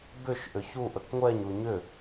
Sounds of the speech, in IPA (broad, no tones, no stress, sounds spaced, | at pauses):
b ʏ ʃ ʔ ʏ ç u ʔ ə k ŋʷ ɛ ɲ u ɲ ʏ